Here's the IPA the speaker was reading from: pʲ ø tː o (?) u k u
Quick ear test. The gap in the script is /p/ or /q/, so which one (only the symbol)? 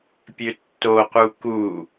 q